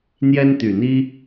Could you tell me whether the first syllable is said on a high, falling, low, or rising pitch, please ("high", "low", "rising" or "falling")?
high